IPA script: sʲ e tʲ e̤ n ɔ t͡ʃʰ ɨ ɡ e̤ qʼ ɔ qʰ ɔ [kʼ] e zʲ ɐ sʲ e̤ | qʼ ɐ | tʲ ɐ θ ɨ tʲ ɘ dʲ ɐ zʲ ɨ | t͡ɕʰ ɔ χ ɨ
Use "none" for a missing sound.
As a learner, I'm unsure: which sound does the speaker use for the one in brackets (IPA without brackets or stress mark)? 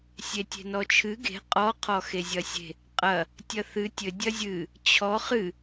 x